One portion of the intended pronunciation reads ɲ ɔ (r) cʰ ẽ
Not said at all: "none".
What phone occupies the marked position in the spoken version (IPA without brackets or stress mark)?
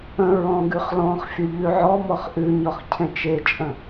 χ